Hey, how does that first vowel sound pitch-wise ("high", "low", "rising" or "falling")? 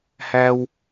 high